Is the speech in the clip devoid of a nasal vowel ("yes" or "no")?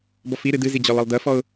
yes